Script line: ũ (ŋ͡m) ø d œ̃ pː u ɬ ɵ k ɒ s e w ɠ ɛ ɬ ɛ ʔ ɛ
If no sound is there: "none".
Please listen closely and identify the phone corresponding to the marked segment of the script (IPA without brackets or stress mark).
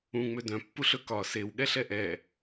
ŋ͡m